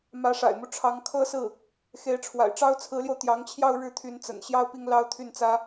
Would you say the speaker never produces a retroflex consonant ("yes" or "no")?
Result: no